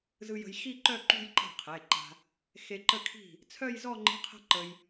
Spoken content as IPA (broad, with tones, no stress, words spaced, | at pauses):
zɯ˧ jə̤˧jxi˥˧ǃœ˥˧ ǃṳ˥˧jǃa̤˥˩qʰe˩˧˩ǃa̤˧ | xe˧ǃə˥˩kʰi̤˥˩ | t͡sʰœ˥˧jzɔ˥˧ŋ͡ǃi̤˧˥˧ qʰə̤˥˧ǃə˧j